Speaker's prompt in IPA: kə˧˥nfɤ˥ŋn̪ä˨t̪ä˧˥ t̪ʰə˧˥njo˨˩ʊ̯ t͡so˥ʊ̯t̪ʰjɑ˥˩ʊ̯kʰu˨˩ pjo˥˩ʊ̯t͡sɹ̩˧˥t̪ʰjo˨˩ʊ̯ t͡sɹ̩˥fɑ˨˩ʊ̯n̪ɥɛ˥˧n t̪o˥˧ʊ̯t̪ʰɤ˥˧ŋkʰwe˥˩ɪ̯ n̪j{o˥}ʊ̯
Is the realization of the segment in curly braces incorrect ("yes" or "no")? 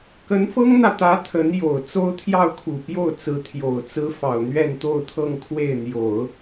yes